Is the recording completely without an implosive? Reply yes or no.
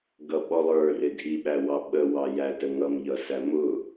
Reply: no